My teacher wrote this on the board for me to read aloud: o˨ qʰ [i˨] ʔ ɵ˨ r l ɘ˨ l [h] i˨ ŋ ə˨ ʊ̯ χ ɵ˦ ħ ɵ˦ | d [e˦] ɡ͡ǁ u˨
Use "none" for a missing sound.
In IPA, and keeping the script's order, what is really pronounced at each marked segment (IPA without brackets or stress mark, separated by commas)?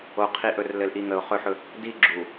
i˨, ʔ, i˦